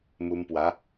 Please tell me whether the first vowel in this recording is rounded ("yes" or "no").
yes